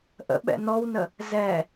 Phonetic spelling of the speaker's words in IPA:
ʔə̰ɓɛ̰ nɔwnə | zɛ

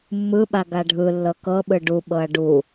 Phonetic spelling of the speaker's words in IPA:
mːɯɓa ɡaɖʱɯlːɤ kɤɓɯ ɖuɓɤɐ̯ ɖu

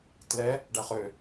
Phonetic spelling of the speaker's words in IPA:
tlɛ | ɖæχø

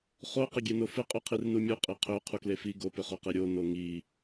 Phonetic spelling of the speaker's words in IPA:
χo qɪɡʲenofɪ qʼøqʰirnumʲu qʼiqʰø qʰuklefi ɡopʏχoqe ɾʲo noŋi

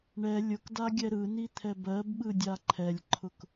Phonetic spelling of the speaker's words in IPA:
ɳɛ lʲʊkdaɡʲɛ ɾɯnit̪ʰɛb ɜbɓɯdʲa ǃʰɛlʲǃʰʊk

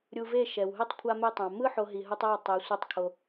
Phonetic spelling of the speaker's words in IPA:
ɾʲu˧ve˦˨ʃɛ˨wɦe˦tˤ kʷʰa˧me˧tˤã˨ mɯ˦ ħo˦ɦi˧ɦɯ˦tˤ ɛ˦˨ tˤe˨˦ sʷi˧tˤkʰo˧

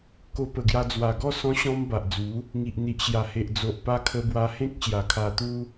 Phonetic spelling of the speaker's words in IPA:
ko˧pə˨˩ɡja˧ d͡zwa˨˩ɡɔ˥˧ sɔ̃˧ɕɔ̃˧m ba˨ʔd͡zu˨˦ | ŋi˨ʔn̪i˨ʔɕja˨˩ he˨ʔd͡zo˨ʔpa˧ kʰə˧bwa˧hẽ˦k̚ ɕja˨˩kʰa˧t̪u˦

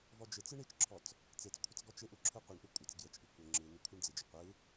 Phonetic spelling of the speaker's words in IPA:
vɔd͡ʒɪt͡sɯ ɳit͡ʃǁʰɔt͡s | t͡set͡skʷʰət͡s ɡɔt͡ʃɪʔu ǁʰɯqʷɯɳʔɯ kʷʼɪt͡s ɡjət͡ʃʔi kʷə ŋ͡ǁɯ nukʷʰɯɳd͡zɪd͡ʒə qʷɯ

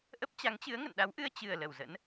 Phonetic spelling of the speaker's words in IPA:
ʔə˦˥p̚t͡ɕa˨˦ŋt͡ɕɨ˨˦ə̯ ŋə̰˧˨nɗa˨˦wʔɨ˧ə̯ t͡ɕɨ˨˩ə̯lə˧˩w zə̰˧˥n

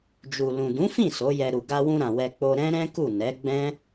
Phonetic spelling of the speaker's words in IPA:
d͡ʒu˨lũ˨dũ˨˦fĩ˦˨ so˨˦jɛ˧ɾu˨ ɡa˧wũ˧ɾã˨ wɛ˧k͡po˧ ɾɛ̃˦ɾɛ̃˦ku˦˨ nɛ˨˦ ɡ͡bɛ̃˦

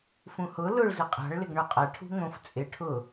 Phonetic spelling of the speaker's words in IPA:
fũhʊ lʊɭzɪ qʼa̤ɭ lɪɡɳoqʼa ʈʰṳŋõf t͡sʼɪ ʈʰʊ

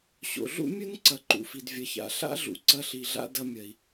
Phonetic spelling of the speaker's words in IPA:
ɕo̰˨ɮṵ˦mʲɵ˦n ǀɐ˨ǃṵ˨fi˨d vʲɐ˨ça̰˨ɬa̰˦ɮṵ˨ ǀɐ˧ɬi˨ɮa̰˧ dɐ˧mʲɐ˨i̯

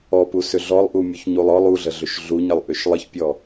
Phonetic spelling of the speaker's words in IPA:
ɔpusʏ ɮɔlˠʔumʲuçɲulˠ ɔlˠ uɮəɮʏʃ ɮuɲəlˠʔʏʃ lˠəçpʲɔ

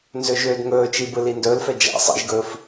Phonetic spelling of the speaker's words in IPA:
nzøʒøːdŋɵːt͡ʃi bɯlindɵːlfɛ d͡ʒa̰ sˤḭʒɡɵːf

